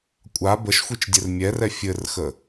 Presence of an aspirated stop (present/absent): absent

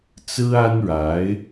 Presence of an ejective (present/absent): absent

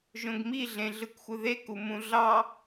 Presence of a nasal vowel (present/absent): present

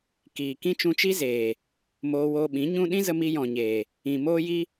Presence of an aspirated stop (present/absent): absent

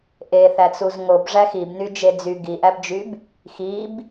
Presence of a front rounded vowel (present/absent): present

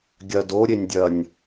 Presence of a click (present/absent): absent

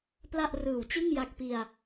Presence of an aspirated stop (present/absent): absent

